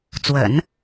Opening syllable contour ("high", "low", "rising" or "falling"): low